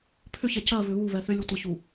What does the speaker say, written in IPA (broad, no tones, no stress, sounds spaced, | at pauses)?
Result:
pʰ ʏ ç ɛ c ɜ β ʏ β u β ɛ θ ʏ lʲ u tʷ ɪ ç u